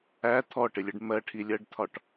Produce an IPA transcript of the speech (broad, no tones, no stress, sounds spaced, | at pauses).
æ t̪ʰ ɔ ʈ ɪ lʲ ə ɖ m ɜ ʈʰ i lʲ ɜ ɖ t̪ʰ ɒ ʈ